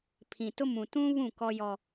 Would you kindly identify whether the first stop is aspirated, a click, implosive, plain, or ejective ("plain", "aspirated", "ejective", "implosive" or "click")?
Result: aspirated